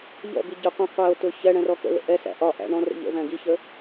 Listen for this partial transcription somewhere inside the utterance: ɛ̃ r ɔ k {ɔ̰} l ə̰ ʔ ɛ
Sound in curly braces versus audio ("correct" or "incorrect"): incorrect